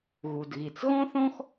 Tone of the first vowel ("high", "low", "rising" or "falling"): low